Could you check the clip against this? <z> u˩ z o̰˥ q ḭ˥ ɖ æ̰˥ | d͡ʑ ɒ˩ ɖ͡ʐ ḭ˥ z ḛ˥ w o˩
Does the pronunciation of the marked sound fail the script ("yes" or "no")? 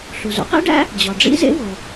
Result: yes